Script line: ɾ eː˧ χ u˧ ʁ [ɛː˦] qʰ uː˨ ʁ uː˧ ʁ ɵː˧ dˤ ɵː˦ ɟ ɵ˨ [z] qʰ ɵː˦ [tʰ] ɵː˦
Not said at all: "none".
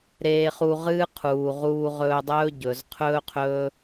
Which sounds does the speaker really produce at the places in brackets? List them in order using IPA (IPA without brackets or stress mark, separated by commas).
ɨː˦, z, qʰ